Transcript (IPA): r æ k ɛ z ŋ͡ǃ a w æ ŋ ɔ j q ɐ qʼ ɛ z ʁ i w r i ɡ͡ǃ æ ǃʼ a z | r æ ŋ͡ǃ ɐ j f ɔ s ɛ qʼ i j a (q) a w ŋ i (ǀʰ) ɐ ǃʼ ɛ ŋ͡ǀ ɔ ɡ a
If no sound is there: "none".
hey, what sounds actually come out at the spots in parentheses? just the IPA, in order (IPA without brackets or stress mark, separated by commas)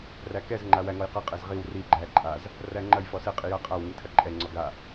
qʼ, tʰ